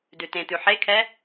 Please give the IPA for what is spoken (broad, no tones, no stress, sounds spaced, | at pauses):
d ʉ t ẽ t̪ ʉ ħ e kʰ ɛ